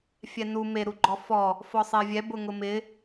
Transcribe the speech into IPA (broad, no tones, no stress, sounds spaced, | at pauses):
fʲ ɛ n u m e ɾ u ɡ͡ǃ ɔ f ɔ | f ɔ sˤ e vʲ ɛ b ʊ ŋ ʊ m ɪ